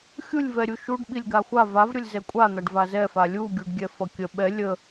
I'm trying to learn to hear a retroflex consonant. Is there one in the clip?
yes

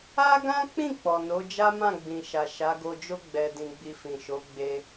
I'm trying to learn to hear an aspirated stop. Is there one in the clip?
no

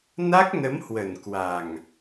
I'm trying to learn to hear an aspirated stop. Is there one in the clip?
no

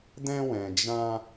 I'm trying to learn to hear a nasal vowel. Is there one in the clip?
yes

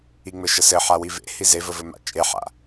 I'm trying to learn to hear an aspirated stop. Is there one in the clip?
no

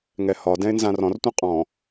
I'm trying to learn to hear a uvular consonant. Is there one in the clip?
yes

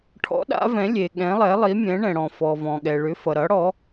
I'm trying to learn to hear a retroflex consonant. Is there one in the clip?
yes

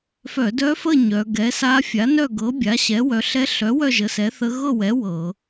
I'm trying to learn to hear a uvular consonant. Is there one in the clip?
no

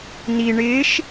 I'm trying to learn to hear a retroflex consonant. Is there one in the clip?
yes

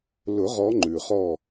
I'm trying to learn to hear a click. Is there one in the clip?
yes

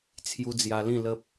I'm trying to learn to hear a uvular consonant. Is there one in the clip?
no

